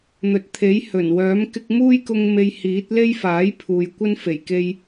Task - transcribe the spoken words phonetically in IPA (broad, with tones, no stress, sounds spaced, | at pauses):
n̪ ɵ˨ t̚ t̪ʰ e˨˥ j h ɵ˨˩ n w œː˨˥ m k ɪ˧ k̚ m uː˥ j k ʊ˧ ŋ m e˧ j h iː˨˥ t̚ l e˥ j f aː˨˥ j pʰ uː˨ j kʷ ɐ˥ n f e˨˩ j k e˧ j